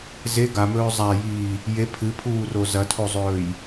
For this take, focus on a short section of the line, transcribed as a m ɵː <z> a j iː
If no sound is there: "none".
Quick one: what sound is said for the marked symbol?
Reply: zˤ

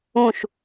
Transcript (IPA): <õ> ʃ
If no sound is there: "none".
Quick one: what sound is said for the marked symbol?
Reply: ũ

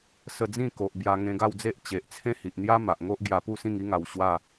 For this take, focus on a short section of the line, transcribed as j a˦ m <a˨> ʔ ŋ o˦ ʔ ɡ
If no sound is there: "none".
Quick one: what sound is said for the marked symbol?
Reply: a˨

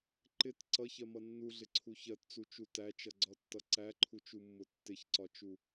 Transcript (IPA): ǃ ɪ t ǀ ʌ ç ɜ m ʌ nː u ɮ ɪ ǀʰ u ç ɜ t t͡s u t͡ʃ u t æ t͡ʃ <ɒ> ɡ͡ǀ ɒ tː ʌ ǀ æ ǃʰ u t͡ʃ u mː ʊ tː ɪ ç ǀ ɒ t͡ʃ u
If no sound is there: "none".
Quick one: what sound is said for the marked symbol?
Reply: ʌ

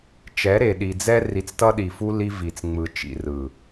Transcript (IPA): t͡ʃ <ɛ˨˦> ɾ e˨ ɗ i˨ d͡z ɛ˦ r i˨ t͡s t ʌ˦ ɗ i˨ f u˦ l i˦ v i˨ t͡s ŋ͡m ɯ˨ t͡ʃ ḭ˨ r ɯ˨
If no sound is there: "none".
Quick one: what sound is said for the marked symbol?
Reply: ɛ˨˦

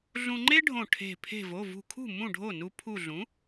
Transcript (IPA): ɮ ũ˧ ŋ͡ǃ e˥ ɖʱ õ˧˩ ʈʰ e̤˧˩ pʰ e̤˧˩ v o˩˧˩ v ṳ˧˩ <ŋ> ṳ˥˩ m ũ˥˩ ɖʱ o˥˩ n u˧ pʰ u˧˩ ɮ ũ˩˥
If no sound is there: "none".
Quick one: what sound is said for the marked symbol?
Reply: kʰ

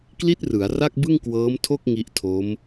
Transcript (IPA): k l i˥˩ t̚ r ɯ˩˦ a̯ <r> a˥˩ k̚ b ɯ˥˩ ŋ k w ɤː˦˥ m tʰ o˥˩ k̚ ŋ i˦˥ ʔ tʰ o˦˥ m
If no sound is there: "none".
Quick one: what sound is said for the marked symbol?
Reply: r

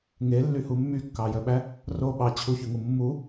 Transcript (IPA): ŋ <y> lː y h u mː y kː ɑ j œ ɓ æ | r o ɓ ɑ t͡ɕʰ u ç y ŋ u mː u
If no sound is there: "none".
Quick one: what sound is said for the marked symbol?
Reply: e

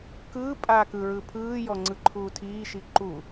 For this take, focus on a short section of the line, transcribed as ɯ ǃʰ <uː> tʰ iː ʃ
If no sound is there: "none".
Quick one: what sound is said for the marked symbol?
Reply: uː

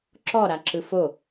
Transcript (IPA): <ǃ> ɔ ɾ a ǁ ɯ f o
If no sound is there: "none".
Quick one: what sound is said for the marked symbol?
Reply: ǁ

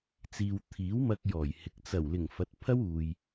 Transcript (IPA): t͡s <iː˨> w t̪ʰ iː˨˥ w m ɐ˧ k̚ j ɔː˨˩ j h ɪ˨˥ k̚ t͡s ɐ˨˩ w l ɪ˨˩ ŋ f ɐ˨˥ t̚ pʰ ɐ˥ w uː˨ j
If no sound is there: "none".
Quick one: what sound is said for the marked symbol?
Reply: iː˨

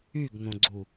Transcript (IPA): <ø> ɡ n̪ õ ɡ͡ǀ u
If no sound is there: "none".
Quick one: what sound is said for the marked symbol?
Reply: y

